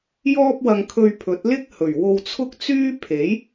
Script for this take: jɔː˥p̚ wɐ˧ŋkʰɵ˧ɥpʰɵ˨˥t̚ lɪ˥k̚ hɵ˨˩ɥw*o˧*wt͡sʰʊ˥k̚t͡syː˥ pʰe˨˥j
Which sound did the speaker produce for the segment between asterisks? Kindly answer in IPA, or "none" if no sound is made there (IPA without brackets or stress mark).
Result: o˧